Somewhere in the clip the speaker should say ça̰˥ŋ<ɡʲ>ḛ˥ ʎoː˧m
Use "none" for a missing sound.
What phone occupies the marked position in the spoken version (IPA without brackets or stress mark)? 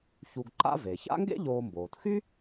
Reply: ɡ